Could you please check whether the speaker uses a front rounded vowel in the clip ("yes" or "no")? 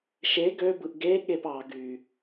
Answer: yes